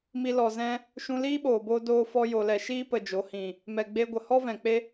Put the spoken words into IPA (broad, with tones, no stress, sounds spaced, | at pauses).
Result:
m i˧ l ɔ˨ z ɛ̃˦ | ʃ ũ˧ l iː˦ ɓ oː˨ b oː˧ d oː˦ f ɔ˦ j o˨ l ɛ˨ ʃ iː˦ p ə˨ d͡ʒ o˨˦ h ĩ˨ | m ɛ˨ ɡ͡b e˧ ɡʷ ə˨ h ɔ˦ v ɛ̃˨ k͡p e˦